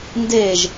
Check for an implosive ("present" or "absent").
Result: absent